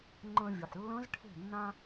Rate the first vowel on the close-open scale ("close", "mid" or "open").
mid